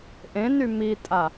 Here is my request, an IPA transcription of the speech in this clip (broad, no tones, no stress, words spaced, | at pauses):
ʔẽny mitʼa